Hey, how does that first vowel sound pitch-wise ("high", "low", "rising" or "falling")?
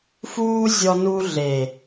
high